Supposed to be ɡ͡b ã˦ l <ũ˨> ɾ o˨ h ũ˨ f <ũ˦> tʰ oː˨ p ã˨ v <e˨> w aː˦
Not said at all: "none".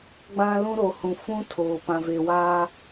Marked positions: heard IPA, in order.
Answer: ũ˦, ũ˦, e˨

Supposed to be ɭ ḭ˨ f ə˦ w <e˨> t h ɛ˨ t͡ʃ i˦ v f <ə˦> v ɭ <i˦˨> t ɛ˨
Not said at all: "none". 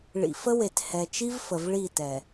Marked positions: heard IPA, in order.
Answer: e˨, ə˨, i˦˨

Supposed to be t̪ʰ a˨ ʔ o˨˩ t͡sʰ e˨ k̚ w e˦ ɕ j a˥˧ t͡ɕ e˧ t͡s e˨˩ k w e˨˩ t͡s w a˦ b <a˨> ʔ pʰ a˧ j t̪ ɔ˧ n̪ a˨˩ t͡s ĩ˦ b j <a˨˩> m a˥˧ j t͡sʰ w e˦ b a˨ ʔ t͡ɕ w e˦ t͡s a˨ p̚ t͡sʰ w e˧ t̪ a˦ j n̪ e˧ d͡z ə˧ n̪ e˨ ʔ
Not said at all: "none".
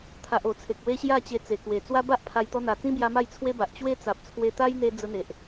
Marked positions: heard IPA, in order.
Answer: a˦, a˧

